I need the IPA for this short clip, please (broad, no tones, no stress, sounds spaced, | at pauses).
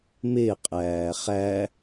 m e qʼ æː χ æ